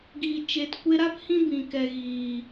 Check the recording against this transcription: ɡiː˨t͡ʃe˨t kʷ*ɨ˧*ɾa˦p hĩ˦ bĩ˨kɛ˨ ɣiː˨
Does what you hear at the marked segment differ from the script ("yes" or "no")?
yes